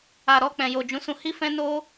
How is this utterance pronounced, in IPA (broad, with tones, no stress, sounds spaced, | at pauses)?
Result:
a˨ ɾ ɔ˧ k͡p ɛ̃˨ j o˨ d͡ʒ ũ˨˦ s ũ˧ h i˦ f ɛ̃˦ n o˦